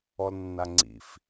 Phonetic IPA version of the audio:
ɔlnːaŋ͡ǀḭf

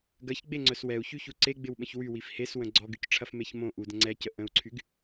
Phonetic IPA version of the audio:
ɡɐçɡ͡beŋ͡ǀœs wɛu̯çyçu ǀeɡ͡bɪwɓə̃ç wywif heswə̃ ɡ͡ǀɔɡycʈ͡ʂʰɐfmeç mõ ʔudə̃ ŋ͡ǀɛcə ʔə̃u̯ǀʰyɡ

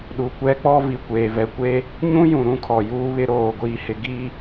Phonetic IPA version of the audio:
ɗu˨kʷɛ˦k͡pɔ˦ vi˨kʷeː˨ vɛ˨kʷe˦ | ɲũ˦jũ˨ ɾũ˦kʰɔ˨ juː˦βɪ˦ ɾoː˦˨ɡʷiː˦hɪ˦ ɡi˦

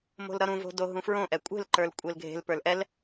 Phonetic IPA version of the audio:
mo̤lɾʌɾũvo̤ doɦũfɹõʔɛ kʷʼe̤lǃə˞l kʷʼelɡʱe̤lpə˞l ʔɛl

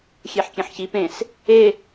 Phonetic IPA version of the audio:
xʲeħkʲẽħçi pẽs | e

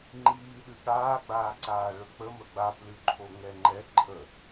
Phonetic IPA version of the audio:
ŋ͡ǃiːɗʉ ɠaːɡ͡baːǀaː ɭɵk͡pəmə ɡ͡baplʉǃʰo ŋɛŋ͡ǃɛ ǃʰə

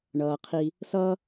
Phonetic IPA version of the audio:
ɳʌː˩qʰi˨ | sʌ˦

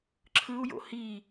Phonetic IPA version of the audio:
ǁʰɯu̯jo̰ hi

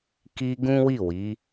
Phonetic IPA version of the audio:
ki˧ ɡũ˦wi˦˨wi˨˦

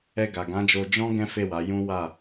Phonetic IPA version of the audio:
ɛ˧ɡa˨ɡã˨˦d͡ʒo˧ d͡ʒɔ̃˦ ɡɛ̃˦fe˦˨ wa˨˦ jũ˦ wa˦˨

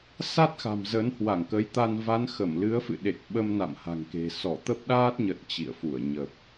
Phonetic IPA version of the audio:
sa˦˥t̚xa̤˨˩m zə˨˦nhwa˧˩ŋkə˨˦jt̪a˧n va˨˦nxə˧˩mlɨ˨˦ə̯fɨ̰˧˨ ɗe˨˩k̚ ɓə˧mna̰˧˨mha̤˨˩ŋke̤˨˩ sɔ˧˩t̪ə˦˥p̚ɗaː˦˥t̚ɲə˨˩t̚ t͡ɕḭ˧˨ə̯fu˧˩ə̯ ɲə˨˩p̚

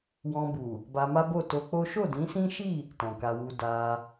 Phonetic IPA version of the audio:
wɔ̃˧bu˨ | ba˧ma˦bo˦˨ to˧k͡po˦ ʃo˦˨dĩ˨˦sĩ˦ʃi˦˨ | tɔ̃˨ka˧wu˧ da˧

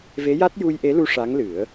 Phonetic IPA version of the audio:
ve˧˥ja˦˥t̚ ju˧jʔe˧˥lu˧ ʂa˧˥ŋlɨ˨˩˦ə̯

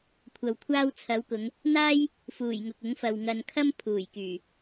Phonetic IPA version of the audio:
kʷʰɐ˨wkʷʰaː˥wt͡sʰɐ˨˥wkʊ˨˧ŋ | n̪aː˥j | fuː˨˩jŋʊ˨k̚ʊ˨˥ŋfɐ˨w ŋɐ˨nkʰɐ˥m pʰuː˨˩jkyː˨˩

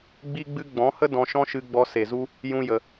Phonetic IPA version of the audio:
ɡ͡bi˦ɡ͡bɨ˦ ɡ͡bɔ̃˨˦hə˦ dɔ̃˧ʃɔ̃˦ʃɨ˧ɡ͡bɔ˧ se˨zu˦ | jũ˧jə˨

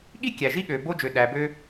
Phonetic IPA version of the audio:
ɠi˥ kʲæ˨ʒi˥ɠø˨ bo˥d͡ʒø˨ ɗæ˨bø˦

